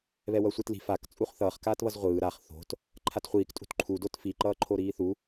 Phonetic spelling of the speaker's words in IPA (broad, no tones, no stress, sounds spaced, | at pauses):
β ɛ w ʌ sʷ i t l i̤ f a k t͡sʼ u χ θ ʌː χ k aː t β ʌ z ʁʷ ɯː ɾ a χ θ o̤ t | ǃʰ a t χʷ iː k tʼ ṳ t ǃʰ u d o t f i ǃ ʌː ǃʰ o ɾ iː θ u